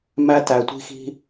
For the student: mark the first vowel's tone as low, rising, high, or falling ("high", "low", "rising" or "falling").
high